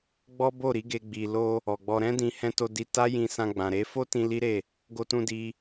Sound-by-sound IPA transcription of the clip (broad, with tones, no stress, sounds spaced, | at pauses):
ɡ͡b ɔ˦ b o˦˨ ɾ i˨˦ ɡ e˧ ɡ͡b i˨ l o˧ | ɔ˨ ɡ͡b ɔ˧ ɾ ɛ̃˦ d ĩ˧ h ɛ̃˧ t o˧ d i˧ t a˦ j ĩ˧ s ã˧ ɡ͡b ã˨ ɾ e˨˦ f o˦ t ĩ˧ l i˦ ɾ e˦˨ | ɡ o˧ t ũ˧ d i˧